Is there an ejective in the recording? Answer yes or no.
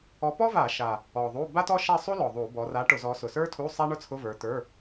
no